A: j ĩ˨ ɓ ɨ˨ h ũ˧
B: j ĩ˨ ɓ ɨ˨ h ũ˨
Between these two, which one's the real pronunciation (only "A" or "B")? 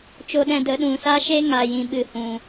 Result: B